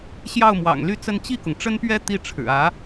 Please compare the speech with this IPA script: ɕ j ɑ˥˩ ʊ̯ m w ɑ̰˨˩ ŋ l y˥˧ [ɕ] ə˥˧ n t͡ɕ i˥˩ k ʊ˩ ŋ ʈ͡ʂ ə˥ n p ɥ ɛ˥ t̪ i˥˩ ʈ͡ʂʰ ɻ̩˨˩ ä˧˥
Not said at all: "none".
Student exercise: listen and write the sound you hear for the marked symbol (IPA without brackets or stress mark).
t͡s